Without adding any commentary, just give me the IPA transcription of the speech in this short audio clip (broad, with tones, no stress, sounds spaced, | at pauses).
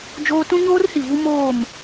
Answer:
d͡ʒ oː˦ t ũ˦ ɲ oː˦ r h i˨ v u˦ m oː˦˨ m